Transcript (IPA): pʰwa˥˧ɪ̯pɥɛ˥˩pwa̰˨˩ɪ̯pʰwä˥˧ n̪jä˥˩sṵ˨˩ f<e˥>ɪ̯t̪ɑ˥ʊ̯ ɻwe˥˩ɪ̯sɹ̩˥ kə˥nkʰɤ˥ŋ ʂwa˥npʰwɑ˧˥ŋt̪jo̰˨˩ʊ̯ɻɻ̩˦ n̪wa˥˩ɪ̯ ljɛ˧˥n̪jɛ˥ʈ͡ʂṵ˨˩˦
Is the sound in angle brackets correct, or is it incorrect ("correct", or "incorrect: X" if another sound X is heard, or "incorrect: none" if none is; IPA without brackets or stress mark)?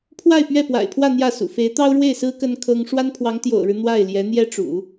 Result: incorrect: e˧˥